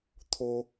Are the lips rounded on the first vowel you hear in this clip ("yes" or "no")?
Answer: yes